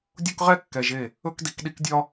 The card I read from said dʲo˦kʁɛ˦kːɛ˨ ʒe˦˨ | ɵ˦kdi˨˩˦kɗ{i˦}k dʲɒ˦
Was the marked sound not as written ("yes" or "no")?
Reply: no